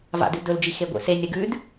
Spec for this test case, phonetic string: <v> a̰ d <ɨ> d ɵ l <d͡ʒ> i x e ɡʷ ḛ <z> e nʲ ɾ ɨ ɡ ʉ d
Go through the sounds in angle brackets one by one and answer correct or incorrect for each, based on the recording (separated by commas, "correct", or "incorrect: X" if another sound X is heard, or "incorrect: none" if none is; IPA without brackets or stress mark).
correct, incorrect: ʉ, correct, incorrect: s